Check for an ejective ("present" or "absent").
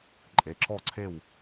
present